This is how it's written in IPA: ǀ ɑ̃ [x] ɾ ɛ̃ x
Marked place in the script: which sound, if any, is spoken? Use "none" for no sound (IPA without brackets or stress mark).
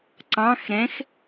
x